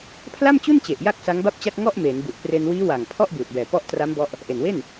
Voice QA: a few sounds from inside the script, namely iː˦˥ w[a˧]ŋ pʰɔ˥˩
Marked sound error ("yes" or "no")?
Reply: yes